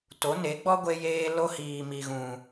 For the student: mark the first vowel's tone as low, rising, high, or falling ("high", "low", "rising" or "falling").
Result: rising